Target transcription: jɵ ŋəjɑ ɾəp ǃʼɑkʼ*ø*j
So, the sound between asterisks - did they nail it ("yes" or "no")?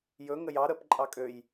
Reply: yes